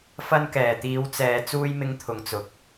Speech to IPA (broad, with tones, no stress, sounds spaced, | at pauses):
f ɐ˧ n k ɛː˨˩ t̪ iː˨˧ w t͡s ɛː˨ t͡s uː˧ j m ɪ˧ ŋ t̪ʰ ʊ˨˩ ŋ t͡s ʊ˨ k̚